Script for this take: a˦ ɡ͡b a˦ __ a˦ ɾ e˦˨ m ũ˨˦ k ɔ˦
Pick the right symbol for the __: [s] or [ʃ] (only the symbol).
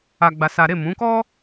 s